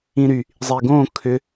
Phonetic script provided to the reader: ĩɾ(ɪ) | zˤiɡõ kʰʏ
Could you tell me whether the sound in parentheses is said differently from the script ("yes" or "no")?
yes